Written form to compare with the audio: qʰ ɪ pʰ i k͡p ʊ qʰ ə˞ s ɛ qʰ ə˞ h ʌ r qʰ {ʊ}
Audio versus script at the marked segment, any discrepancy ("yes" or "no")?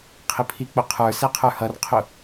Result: no